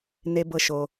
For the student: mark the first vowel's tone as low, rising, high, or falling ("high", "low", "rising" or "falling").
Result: low